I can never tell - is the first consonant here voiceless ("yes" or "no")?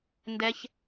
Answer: no